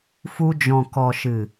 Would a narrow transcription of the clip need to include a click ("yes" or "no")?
no